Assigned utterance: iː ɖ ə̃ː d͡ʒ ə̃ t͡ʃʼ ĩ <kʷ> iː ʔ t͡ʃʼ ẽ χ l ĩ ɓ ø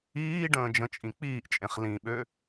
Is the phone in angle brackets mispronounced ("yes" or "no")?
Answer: yes